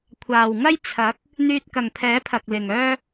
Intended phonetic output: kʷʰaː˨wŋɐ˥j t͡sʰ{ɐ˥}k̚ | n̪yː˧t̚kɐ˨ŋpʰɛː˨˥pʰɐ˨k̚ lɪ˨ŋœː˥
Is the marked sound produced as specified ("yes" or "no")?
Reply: no